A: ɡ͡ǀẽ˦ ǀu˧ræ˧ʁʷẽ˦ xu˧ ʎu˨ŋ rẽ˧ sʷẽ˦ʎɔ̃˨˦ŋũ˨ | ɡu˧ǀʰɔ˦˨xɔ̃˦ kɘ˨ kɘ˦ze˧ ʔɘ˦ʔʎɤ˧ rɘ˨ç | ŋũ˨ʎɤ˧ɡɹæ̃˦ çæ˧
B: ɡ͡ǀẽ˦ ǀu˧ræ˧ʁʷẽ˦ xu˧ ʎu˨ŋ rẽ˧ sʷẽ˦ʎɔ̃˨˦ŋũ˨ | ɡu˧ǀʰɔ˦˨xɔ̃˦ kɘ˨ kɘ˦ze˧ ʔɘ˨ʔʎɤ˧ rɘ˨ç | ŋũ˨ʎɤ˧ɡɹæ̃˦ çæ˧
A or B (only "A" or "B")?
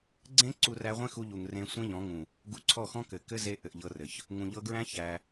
B